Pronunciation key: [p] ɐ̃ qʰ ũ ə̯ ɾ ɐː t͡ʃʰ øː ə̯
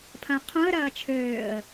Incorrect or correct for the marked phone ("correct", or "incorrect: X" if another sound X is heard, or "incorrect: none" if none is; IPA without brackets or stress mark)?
incorrect: pʰ